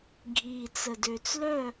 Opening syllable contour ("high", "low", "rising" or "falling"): low